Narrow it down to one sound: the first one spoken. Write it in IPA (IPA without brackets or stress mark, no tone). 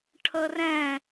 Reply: ʈʰ